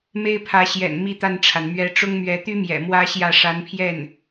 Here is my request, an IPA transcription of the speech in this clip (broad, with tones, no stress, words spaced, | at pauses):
me˥ɪ̯pʰä˧˥ɕjɛ̰˨˩n mi˥t̪a˥˩nʈ͡ʂʰa˩n mɥɛ˧˥ʈ͡ʂʊ˥ŋmɥɛ˧˥ t̪y˥mjɛ̰˨˩ mwä˥ɕjä˥˩ ʂa˧˥npʰjɛ˥˩n